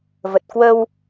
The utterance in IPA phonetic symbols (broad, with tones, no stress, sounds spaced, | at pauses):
v ə˨˩ t̚ k w ə˧ w